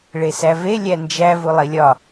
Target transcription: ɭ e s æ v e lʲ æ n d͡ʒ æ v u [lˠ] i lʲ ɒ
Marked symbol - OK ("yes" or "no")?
yes